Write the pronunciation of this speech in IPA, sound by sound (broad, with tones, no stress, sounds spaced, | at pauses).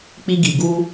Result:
k͡p i˧ ɡ i˨ ɡ u˧